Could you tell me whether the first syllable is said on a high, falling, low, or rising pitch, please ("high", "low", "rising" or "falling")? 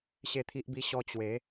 high